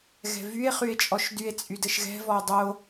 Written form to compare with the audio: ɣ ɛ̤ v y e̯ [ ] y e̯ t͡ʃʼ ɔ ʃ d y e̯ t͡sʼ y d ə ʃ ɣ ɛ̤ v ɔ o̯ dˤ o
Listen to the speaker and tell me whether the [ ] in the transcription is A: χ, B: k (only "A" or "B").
A